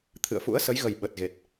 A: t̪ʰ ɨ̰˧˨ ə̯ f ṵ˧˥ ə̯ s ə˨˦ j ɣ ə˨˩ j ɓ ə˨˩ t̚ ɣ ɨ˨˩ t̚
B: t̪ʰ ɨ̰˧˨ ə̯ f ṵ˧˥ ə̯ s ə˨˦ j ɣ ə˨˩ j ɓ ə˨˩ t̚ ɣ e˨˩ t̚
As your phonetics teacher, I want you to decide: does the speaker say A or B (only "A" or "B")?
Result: B